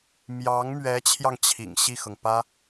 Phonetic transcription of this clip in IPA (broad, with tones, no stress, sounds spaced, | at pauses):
m j ɑ˧˥ ŋ m ɥ ɛ˧˥ t͡ɕʰ j ɑ˧ ŋ t͡ɕʰ ḭ˨˩ ŋ ɕ i˥˩ x ɤ˩ ŋ p ä˥